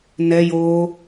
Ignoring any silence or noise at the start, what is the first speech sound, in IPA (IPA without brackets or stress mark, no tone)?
n